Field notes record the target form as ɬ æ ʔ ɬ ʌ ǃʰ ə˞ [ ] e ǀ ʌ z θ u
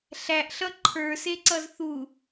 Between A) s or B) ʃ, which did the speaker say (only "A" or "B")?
A